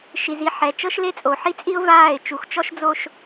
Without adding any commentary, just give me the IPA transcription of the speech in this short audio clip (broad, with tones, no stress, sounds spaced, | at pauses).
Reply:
ʃ i˨ z i˦ ħ ɛ˨ t͡ʃ ɤ˦ ʃ l e˦ t͡sʼ o˨ ħ i˦ t͡sʼ i˦ ʊ̯ v aː˦˨ ɪ̯ t͡ʃ u˨ x t͡ʃ ɔ˦ ʃ d͡z o˦ ʃ